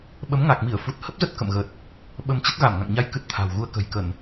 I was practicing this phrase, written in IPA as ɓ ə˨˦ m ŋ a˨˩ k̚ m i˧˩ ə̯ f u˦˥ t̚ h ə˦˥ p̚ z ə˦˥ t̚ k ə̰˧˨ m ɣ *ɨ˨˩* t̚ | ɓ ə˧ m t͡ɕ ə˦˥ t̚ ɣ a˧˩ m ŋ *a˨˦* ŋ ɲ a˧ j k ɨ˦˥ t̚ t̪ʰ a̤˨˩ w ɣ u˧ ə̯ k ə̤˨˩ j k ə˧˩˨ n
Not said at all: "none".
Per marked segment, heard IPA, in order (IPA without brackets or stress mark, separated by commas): ə˨˩, a̰˧˨